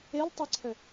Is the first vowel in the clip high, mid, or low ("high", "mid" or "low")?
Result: mid